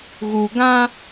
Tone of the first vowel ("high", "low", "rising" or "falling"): low